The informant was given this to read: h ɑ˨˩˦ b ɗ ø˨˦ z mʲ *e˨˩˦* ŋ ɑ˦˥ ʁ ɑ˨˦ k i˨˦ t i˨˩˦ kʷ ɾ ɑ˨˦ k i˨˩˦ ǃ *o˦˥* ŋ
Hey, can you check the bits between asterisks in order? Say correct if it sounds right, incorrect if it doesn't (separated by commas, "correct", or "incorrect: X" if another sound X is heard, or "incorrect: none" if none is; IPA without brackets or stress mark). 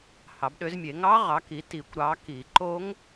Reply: correct, correct